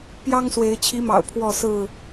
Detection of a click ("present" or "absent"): absent